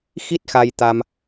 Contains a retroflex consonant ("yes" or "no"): no